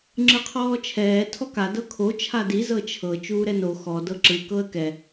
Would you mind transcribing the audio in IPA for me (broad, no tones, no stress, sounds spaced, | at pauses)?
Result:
ŋ͡ǁ ɯ qʰ ɔː t͡ʃʰ ɛː tʰ ɔ k a d ɤ kʰ o t͡ʃʰ a d i z ɤ t͡ʃʰ ɤ t͡ʃ uː ɾ ɛ n o x ɔ d ɤ ǁ ɯ k ɤ ə̯ k ɛ